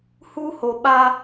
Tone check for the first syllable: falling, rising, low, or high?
high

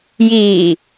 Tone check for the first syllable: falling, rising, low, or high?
low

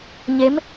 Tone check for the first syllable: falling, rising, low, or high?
rising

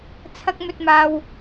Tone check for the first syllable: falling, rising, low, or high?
high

